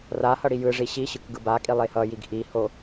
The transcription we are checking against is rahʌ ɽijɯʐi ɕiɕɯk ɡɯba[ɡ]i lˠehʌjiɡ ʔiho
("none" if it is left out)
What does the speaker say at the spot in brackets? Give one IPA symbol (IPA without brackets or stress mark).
kʼ